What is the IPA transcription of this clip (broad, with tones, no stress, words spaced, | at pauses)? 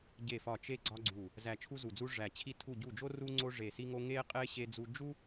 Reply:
ɟe˦˨fɒ˦˨ t͡ʃe˥ɡ͡ǀɒ˥ɡ͡ǀu˦˨ | zæ˦˨t͡ʃʰu˥zu˦˨d͡zu˥ ʐæ˦˨ t͡ɕʰi˦˨tʰu˦˨ɟu˦˨d͡ʒo˥ ru˥ ŋ͡ǀo˥ʐe˦˨si˥ŋo˥ ŋe˥qʼe˥ ɕe˥d͡zu˥ d͡ʒu˥